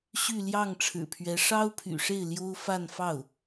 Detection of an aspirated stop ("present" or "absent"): present